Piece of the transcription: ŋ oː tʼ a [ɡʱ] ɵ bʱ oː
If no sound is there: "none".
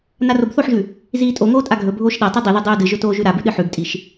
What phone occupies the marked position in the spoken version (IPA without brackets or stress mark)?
ɡʱ